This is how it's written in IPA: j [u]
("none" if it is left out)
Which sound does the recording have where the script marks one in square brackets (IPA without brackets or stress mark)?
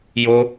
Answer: o